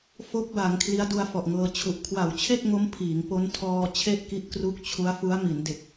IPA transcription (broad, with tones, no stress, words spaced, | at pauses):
fo˦˥k̚ba˩˦ŋ kʰli˦˥a̯du˧a̯fɔ˨˩ʔŋɤː˧ t͡ɕʰu˨˩ʔ kʰwa˨˩wt͡ɕʰe˥˩k̚ŋo˦˥m pʰiː˩˦ŋpo˦˥n tʰɔː˧ t͡ɕʰe˥˩ʔki˦˥ʔkru˦˥k̚ t͡ɕʰu˦˥a̯fu˦˥a̯mi˩˦nde˨˩k̚